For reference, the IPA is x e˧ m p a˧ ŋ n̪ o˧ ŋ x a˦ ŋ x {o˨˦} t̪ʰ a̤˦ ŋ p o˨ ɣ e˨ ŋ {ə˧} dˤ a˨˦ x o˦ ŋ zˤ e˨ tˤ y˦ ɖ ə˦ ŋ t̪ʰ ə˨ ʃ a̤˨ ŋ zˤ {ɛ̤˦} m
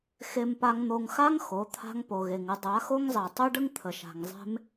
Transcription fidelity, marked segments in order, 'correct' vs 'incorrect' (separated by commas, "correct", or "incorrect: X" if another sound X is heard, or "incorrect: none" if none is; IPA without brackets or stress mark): correct, incorrect: ə˨˦, incorrect: e̤˦